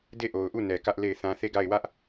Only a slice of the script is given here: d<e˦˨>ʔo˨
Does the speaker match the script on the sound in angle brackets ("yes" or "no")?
yes